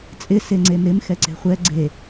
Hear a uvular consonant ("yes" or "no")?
yes